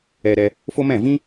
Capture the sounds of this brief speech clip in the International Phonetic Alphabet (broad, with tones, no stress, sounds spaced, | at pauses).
ɛ˧ ɾ ɛ˧ | f o˦ m ɛ̃˦˨ v ĩ˦